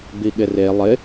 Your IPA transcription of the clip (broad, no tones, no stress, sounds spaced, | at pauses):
b i ɠ ɪ r e lˠ ɪ